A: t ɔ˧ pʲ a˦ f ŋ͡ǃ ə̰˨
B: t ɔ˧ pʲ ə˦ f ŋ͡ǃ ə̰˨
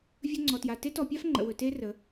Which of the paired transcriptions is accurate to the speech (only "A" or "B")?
A